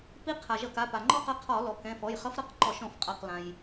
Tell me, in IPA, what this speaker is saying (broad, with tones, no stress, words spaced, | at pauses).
pi˧˥ qʰa˩ ʒʌ˧˩˧ka˩˧˩ pa˩ŋ͡ǃɔ˥qʌ˧˥ qʰɔ˧˩˧lɔ˩ kɛ̃˩˧˩fɔ˩˧˩jχʌ˧˥f ɾʌ˧˥q ǃɔ˧˩˧ʃɔ̃˧˩˧f qʼa˩˧˩q lã˩j